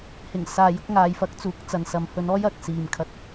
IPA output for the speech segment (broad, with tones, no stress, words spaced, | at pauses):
hɪ˨˩ŋ saː˨jʊ˨˥k̚ŋaː˨j fɐ˨˥k̚t͡suː˨˥k̚ t͡sɐ˨nsɐ˨mhɵ˧nɔː˥j ɐ˨k̚ siː˨mkʰɐ˧t̚